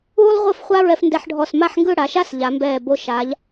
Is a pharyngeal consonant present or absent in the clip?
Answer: present